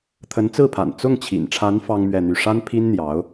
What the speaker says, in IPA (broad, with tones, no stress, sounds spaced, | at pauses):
t̪ʰ ə˧˥ n t͡s ɹ̩˥˩ pʰ a̰˨˩ n t͡s ʊ˥˩ ŋ t͡ɕʰ ḭ˨˩ n ʈ͡ʂʰ a˧˥ n f ɑ˥ ŋ m ɥ ɛ˥˧ n̪ y˥˩ ʂ a˥ n pʰ i˥ n n̪ j ɑ˧˥ ʊ̯